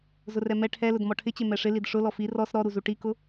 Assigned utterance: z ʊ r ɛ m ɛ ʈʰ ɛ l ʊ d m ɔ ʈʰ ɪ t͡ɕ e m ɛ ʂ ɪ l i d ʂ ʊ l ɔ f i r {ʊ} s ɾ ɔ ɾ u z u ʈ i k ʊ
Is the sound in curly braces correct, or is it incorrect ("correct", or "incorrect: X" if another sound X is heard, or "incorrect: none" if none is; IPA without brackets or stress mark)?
incorrect: ɔ